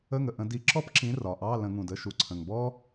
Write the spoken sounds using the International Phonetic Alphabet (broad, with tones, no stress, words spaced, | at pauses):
ə˧˥˧ŋə˩ʔə̃˧˩˧ di˨˥ ǁɔ˥p ǁĩ˨˥rɒ˩ ʔɑ˧˥˧ lə̃˧˩˧ŋũ˩d ə˧˥˧ʃu˩ǀʰə̃˩ŋbɔ˥